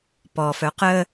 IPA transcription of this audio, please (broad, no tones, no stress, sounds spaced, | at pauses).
p ɔ f œ q ə